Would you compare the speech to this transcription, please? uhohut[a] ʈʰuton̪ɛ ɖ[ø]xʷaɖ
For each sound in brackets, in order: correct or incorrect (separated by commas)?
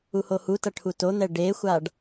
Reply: incorrect, incorrect